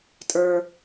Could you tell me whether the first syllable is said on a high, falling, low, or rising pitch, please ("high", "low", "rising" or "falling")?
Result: low